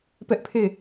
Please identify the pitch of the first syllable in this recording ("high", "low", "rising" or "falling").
high